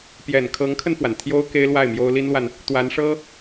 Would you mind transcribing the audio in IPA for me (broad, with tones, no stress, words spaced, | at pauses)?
pjɛ˨˩nkʰɤ˧˥ŋkʰə˧nfwa˩n t̪ʰjo˥ʊ̯ ke˥ɪ̯lwa˥˩ɪ̯mjo˥ʊ̯ li˥nlwa˨n | t̪wa˧˥nʂɤ˥